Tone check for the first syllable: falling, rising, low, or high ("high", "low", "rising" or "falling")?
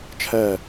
falling